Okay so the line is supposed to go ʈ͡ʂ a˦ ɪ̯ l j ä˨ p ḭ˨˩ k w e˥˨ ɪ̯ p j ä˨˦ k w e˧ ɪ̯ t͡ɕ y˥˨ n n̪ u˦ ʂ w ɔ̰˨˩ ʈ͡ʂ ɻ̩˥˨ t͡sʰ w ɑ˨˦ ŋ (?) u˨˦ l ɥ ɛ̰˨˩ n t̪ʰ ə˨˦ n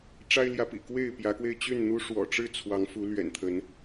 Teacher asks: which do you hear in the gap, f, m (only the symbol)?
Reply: f